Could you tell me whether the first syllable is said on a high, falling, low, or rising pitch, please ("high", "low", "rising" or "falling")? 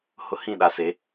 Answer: high